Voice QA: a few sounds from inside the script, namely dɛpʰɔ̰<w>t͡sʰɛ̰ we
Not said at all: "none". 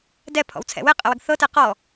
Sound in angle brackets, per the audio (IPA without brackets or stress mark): w